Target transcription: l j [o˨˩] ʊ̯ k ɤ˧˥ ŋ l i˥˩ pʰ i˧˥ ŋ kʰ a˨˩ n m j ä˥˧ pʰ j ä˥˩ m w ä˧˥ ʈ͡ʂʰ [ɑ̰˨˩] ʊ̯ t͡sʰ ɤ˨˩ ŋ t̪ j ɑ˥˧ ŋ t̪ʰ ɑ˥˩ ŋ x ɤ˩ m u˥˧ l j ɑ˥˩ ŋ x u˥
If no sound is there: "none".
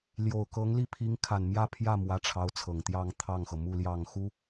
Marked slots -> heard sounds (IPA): o˨˩, ɑ˧˥

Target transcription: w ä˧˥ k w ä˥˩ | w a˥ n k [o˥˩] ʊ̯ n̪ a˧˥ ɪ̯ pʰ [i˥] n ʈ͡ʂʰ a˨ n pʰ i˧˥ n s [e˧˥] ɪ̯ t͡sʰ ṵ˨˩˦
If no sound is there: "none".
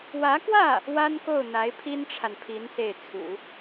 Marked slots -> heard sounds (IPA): o˥˩, i˥, e˥˩

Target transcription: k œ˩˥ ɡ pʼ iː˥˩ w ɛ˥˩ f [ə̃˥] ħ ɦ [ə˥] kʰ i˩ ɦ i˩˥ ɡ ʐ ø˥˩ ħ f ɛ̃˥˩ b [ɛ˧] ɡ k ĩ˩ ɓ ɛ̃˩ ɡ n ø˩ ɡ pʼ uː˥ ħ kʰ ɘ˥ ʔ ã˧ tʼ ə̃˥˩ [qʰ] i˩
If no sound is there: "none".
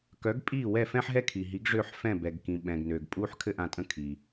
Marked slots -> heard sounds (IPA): ɛ̃˥, ɛ˥, ɛ˩, kʰ

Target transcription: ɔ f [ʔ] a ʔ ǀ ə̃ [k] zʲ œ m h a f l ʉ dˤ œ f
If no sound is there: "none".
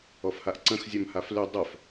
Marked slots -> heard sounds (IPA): h, x

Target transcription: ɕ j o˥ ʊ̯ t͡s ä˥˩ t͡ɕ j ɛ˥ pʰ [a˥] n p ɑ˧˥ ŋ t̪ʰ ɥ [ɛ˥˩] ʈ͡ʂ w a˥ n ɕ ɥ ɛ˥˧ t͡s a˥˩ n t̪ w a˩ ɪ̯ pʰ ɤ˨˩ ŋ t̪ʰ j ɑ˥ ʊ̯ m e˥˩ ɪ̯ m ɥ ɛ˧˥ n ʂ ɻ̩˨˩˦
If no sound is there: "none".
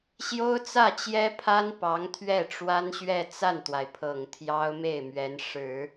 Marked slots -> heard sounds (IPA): a˥, ɛ˥˩

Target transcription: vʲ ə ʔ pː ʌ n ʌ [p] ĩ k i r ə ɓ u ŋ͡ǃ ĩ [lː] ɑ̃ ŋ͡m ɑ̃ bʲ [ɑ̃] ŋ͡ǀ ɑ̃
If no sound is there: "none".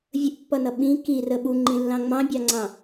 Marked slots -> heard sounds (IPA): ɓ, lː, ɑ

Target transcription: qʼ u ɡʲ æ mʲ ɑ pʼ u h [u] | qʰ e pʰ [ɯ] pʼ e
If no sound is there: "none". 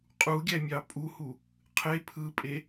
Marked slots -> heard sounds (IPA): u, ɯ

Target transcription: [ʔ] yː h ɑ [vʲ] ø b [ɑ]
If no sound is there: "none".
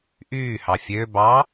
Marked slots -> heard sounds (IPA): ʔ, fʲ, ɑ

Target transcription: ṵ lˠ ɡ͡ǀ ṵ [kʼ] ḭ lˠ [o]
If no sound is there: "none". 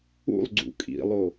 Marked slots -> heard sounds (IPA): kʼ, o

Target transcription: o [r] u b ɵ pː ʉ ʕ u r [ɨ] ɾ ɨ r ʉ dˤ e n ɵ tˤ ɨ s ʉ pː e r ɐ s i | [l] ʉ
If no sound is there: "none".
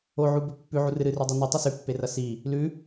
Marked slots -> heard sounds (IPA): ʕ, ɨ, l

